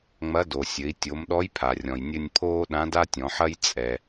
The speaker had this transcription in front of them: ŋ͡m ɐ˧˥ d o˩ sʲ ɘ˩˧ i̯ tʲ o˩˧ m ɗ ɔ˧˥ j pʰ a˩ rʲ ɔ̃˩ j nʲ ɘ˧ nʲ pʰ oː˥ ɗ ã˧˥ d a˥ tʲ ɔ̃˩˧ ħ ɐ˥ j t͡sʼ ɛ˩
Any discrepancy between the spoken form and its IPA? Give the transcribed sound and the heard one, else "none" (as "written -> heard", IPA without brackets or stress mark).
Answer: none